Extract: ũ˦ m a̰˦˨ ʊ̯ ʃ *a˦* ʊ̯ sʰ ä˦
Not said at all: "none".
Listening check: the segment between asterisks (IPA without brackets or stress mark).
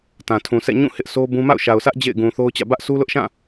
a˨